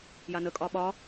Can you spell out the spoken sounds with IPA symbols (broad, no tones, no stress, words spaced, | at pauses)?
janəkʼɒ ɓɒ